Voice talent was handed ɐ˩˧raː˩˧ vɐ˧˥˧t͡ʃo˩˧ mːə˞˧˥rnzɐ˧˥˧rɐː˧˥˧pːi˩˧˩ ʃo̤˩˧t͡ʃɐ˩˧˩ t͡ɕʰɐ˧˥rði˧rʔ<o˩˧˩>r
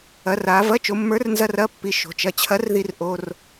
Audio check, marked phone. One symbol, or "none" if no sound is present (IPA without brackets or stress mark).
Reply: o˩˧˩